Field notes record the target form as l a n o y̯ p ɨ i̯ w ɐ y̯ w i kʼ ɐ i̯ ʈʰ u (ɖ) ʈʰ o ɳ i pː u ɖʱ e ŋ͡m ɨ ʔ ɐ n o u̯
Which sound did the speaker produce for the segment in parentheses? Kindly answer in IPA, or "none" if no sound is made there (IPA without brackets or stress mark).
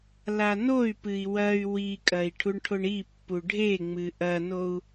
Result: ɳ